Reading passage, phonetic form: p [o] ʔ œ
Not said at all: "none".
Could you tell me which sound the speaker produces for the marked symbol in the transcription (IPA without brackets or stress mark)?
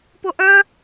o